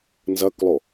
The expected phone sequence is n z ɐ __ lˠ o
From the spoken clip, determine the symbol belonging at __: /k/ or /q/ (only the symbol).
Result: k